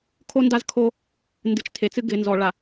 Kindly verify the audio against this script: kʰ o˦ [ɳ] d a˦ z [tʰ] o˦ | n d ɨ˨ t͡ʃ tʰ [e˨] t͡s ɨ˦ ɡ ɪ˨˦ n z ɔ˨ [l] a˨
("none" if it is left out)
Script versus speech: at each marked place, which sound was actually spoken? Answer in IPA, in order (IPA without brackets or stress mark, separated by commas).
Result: n, kʰ, e˨, ɭ